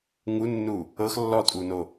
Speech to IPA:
ŋ u nː u | ɤ x lː ɔ tʼ u n o

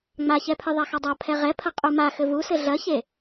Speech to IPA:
ŋ͡m a ç ɛ pʰ ɨ ðˤ a x ɔ dˤ a pʰ ɛ ʁ ɛ pʰ ɐ qʼ u m a x ɘ v u s ɘ ɮ ɐ ç e

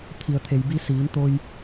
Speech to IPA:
t̪ʰ i˩ ə̯ t̪ʰ e˩ j b i˧ s iː˩˧ n t̪ o˧ j

